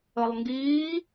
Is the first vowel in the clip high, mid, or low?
mid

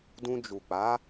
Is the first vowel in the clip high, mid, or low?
high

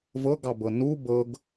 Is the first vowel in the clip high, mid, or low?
mid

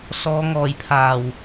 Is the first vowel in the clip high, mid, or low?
mid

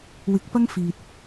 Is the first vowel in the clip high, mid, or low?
high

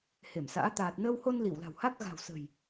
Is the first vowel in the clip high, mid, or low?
mid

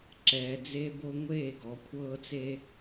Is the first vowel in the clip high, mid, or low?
mid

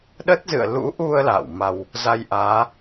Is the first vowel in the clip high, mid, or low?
mid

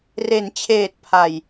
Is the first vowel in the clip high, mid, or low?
mid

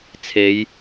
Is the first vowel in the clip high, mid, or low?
mid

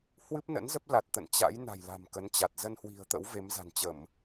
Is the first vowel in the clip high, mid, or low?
high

